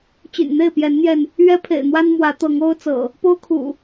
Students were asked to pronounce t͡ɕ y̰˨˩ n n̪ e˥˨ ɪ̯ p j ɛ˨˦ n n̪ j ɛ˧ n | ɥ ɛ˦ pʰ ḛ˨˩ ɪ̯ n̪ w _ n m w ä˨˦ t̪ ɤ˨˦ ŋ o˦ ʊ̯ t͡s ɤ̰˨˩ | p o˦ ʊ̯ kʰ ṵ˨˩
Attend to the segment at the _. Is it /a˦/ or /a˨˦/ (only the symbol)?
a˦